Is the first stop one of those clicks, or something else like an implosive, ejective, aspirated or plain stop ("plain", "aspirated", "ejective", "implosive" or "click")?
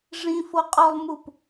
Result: ejective